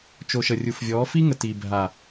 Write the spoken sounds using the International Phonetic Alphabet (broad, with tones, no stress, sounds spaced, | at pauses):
t͡ʃ o˨ ʃ ə˨ rʲ u˨ f vʲ ɔ˨˦ f i˦ ŋ ə˨ t i˨ bʱ a˨